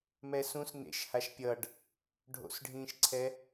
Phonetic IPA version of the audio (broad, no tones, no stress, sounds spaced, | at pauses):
m ɛ s ũ s n ḛ ʃ h a ʃ pʲ ʌ ɖ | ɖʱ o̰ s ɖʱ ĩː ʃ ǀʰ ɛ